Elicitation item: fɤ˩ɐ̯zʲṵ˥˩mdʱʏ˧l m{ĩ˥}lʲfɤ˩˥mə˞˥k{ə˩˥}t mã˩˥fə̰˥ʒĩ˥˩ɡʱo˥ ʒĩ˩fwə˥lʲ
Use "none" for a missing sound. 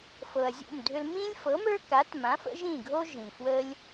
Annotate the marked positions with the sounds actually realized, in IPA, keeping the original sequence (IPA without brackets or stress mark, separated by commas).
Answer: ĩ˥, a˩˥